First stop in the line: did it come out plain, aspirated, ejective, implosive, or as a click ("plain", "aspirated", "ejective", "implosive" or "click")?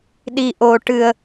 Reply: implosive